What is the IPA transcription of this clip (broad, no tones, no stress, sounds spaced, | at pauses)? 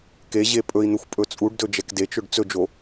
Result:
k e ʑ e pʼ ɵ i̯ n̪ ɵ xʷ pʼ ɵ t͡sʼ u ɖ d ɵ d͡ʒ ɛ k d e t͡ʃ ɵ ɖ t͡s ɵ d͡ʒ o